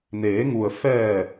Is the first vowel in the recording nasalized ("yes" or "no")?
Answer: no